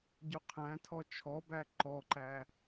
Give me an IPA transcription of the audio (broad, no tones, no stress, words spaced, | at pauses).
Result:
ɟuqʰæ̃tʰɔ t͡ʃʰɔbæ ǃɔǃæ